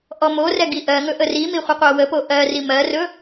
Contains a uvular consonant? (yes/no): yes